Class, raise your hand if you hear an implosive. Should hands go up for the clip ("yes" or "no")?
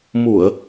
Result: no